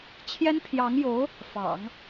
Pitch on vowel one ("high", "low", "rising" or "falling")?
high